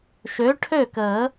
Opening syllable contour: rising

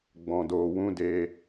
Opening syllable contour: low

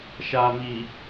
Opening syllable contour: low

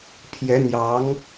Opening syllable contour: rising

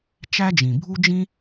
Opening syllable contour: high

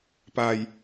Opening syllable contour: low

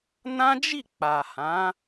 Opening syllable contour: high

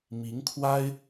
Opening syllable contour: rising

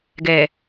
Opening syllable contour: low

